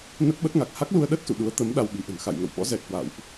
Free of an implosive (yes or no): no